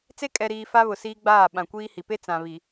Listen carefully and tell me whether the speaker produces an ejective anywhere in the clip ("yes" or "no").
yes